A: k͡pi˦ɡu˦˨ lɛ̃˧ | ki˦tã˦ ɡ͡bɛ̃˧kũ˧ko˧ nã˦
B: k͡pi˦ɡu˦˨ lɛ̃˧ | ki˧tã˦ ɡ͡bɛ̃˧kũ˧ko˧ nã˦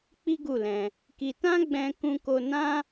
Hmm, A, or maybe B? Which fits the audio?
B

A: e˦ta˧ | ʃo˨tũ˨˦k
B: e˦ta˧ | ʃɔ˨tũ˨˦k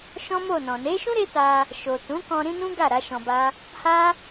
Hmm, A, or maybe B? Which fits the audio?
A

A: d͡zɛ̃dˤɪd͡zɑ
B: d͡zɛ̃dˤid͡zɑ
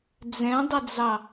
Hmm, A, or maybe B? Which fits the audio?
A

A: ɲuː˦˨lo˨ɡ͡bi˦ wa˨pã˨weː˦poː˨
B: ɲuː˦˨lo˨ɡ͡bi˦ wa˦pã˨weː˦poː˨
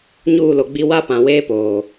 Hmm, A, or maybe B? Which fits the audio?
B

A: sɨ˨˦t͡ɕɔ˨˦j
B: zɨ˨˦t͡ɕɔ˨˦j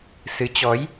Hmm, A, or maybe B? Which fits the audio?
A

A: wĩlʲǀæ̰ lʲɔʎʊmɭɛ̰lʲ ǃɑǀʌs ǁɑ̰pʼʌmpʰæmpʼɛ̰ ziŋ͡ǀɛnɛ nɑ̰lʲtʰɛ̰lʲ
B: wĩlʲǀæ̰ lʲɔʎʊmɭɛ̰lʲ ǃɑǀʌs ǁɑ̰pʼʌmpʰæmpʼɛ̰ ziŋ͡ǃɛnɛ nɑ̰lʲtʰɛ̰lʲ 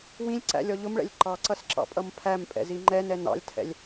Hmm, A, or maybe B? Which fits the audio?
B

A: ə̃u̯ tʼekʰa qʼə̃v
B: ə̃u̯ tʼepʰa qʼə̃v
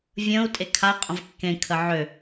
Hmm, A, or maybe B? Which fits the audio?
A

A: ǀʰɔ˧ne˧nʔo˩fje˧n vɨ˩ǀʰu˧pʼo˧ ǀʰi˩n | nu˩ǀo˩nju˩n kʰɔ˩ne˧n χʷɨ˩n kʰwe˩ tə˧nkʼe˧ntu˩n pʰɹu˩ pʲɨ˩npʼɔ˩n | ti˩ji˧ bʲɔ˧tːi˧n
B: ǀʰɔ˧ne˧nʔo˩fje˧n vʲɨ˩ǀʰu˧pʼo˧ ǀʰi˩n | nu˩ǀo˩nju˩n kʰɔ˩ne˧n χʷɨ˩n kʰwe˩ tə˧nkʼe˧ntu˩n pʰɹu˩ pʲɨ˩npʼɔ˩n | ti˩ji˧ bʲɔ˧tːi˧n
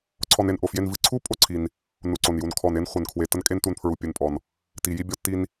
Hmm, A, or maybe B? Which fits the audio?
A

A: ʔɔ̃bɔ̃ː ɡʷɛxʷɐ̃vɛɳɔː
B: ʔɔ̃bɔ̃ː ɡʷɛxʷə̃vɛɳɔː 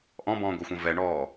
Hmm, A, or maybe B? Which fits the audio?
A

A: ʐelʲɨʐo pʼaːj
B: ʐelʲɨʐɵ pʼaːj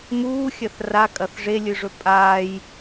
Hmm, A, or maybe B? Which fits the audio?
B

